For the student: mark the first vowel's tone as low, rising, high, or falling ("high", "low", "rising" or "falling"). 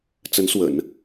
rising